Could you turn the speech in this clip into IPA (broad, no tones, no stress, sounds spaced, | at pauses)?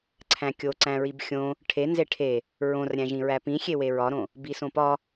ǀʰ æ̃ kʲ o ǀ æ̃ ɹ i b xʲ õ | ʈʰ e n z e ʈʰ e | ɹ õ r ɾʲ æ̃ ʒ ĩ ɹ æ p ĩ xʲ e w e ɹ ɒ ɾ õ | b i s õ p ɒ